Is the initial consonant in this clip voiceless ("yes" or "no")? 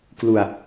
yes